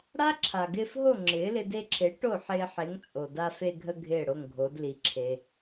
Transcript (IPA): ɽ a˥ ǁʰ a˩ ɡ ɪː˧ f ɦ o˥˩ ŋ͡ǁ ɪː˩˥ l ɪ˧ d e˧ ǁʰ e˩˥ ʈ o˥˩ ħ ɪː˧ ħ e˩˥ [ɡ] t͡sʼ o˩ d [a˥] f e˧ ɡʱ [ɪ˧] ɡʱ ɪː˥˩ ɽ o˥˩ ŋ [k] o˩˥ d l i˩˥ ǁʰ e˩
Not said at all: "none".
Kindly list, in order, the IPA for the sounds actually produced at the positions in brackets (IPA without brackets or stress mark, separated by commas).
ŋ, a˧, ə˧, ɡʱ